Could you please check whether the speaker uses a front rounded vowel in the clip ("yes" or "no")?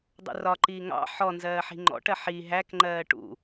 no